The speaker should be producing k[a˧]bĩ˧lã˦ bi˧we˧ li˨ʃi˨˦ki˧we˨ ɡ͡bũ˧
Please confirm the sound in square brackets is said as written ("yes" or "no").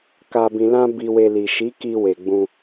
yes